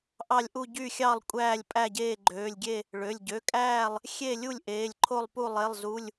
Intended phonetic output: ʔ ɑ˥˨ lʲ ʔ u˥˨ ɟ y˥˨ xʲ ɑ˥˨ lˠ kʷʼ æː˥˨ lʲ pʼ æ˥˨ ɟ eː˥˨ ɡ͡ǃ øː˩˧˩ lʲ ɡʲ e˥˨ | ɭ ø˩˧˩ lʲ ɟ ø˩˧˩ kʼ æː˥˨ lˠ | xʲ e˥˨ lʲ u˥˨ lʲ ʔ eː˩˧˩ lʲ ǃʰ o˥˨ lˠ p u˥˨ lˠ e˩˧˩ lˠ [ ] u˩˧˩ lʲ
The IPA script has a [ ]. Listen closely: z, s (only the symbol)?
z